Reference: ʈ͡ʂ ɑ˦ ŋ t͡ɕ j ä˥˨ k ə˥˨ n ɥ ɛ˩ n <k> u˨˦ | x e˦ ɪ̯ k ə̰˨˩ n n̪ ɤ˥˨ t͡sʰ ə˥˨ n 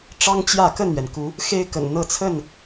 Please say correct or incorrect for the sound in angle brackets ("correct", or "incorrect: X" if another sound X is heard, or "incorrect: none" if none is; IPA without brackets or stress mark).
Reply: correct